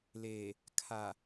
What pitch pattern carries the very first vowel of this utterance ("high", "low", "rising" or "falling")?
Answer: low